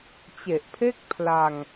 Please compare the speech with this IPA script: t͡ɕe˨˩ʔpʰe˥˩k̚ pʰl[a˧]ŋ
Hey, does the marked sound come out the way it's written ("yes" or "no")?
yes